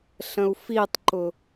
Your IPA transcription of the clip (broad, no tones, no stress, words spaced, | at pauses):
ɬə̃u̯fitˤǃʊ